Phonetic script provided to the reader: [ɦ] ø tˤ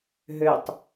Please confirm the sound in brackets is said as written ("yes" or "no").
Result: yes